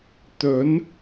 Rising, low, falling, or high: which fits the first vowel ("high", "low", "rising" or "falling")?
rising